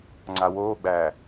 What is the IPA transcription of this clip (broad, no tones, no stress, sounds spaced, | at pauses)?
ŋ͡ǀ a w oː ɡ͡b æː